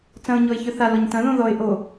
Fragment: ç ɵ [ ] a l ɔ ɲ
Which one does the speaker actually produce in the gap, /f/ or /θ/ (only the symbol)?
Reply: θ